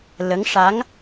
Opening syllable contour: rising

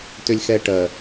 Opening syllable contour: low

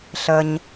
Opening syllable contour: low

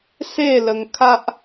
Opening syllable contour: falling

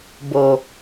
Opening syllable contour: low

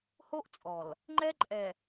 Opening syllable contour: high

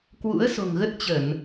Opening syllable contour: rising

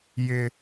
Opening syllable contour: high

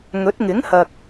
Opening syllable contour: rising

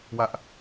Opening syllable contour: high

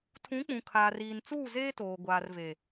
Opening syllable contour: rising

